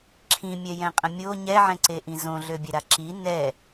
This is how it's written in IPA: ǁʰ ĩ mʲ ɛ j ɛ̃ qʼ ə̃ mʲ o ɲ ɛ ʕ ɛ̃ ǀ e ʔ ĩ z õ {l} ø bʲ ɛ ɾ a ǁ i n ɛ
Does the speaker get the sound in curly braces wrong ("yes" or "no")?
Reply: yes